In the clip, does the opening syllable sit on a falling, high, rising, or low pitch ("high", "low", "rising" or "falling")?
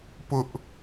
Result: high